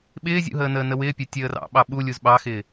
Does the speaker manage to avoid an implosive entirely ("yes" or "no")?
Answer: no